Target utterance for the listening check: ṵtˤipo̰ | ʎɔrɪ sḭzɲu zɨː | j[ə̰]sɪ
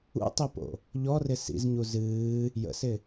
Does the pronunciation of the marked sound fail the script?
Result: no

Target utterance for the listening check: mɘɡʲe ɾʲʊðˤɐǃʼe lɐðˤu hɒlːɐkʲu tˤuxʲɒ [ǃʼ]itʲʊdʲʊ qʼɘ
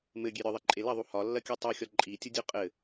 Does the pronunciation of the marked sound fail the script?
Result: no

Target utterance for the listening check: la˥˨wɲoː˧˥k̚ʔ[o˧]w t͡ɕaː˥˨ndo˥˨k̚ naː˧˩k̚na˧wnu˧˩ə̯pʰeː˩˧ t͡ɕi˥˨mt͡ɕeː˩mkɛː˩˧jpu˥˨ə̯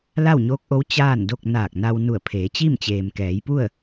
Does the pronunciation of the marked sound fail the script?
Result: yes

